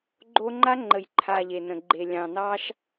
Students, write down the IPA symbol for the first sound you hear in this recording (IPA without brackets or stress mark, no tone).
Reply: ɡ͡ǃ